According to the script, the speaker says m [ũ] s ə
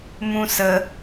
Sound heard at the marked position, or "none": ũ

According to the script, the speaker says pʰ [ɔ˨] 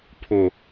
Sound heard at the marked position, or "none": ʊ˨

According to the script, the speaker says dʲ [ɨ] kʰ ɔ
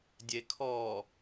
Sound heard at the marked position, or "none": e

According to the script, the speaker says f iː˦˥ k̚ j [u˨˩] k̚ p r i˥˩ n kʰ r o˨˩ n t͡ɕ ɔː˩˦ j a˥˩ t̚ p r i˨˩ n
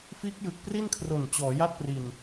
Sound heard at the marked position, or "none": ɯ˨˩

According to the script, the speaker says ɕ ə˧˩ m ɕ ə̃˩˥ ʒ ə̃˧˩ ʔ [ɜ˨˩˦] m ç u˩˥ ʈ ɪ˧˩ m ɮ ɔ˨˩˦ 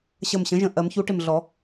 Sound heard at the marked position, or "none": ɜ˨˩˦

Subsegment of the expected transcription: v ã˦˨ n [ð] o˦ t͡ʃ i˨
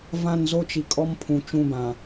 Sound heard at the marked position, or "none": z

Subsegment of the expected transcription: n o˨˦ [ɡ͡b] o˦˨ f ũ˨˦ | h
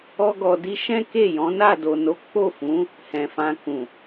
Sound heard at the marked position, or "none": k͡p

